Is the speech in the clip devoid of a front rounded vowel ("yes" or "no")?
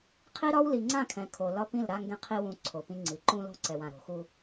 yes